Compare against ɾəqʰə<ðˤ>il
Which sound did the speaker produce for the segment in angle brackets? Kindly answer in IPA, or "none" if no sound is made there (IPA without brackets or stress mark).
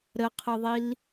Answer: ðˤ